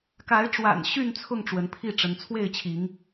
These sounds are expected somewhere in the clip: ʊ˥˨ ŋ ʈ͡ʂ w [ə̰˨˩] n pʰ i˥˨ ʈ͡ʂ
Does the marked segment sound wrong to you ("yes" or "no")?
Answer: yes